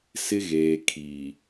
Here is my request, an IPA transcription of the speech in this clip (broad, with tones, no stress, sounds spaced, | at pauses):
s ɪ˦ ɣ eː˨ kʰ iː˨